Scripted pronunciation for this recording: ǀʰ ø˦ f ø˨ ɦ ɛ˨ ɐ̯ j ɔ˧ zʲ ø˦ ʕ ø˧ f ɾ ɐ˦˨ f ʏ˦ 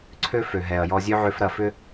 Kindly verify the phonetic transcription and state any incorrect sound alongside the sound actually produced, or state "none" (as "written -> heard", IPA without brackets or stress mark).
none